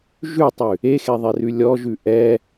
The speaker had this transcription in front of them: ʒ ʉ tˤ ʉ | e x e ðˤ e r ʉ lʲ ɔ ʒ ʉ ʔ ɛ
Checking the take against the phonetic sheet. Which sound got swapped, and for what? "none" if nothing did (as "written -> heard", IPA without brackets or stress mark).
none